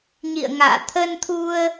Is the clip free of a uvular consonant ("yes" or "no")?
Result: yes